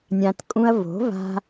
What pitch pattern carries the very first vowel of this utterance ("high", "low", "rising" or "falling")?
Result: low